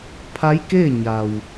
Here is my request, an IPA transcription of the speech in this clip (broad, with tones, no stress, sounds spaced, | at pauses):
pʰ a˧˥ j k eː˥˨ ɲ a˩ w